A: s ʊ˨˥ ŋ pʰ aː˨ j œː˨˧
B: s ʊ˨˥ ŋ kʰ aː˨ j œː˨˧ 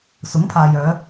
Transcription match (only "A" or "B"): A